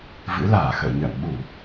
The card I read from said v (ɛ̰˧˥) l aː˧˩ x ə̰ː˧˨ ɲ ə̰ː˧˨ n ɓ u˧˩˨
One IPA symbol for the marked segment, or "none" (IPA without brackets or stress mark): ɨ̰˧˥